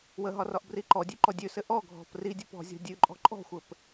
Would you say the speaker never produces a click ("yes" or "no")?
no